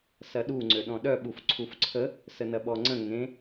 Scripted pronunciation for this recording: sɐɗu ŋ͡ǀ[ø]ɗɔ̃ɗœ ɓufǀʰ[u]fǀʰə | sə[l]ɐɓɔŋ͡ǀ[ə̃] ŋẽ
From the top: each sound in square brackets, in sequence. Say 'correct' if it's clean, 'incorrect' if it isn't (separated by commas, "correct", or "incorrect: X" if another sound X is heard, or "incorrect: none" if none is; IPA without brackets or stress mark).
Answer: correct, correct, incorrect: n, correct